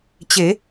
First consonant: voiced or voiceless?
voiceless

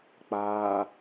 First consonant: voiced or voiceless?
voiceless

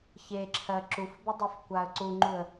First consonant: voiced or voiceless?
voiceless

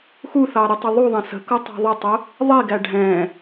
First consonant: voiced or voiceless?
voiceless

